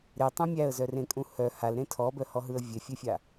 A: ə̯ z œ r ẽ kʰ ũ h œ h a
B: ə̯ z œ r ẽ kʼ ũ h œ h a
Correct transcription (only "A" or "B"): B